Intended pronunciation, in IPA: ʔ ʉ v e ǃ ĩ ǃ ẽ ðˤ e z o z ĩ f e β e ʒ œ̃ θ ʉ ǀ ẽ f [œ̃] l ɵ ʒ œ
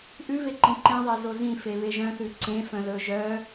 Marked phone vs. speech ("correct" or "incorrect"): correct